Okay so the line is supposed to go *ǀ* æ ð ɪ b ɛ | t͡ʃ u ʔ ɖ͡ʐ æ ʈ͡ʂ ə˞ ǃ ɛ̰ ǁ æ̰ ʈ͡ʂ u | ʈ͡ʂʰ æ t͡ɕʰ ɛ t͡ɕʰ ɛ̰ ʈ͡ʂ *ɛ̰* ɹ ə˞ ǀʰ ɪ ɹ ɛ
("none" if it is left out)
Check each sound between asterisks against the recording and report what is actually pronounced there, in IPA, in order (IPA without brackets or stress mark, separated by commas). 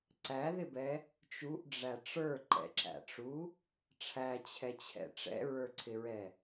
ǀ, ɛ̰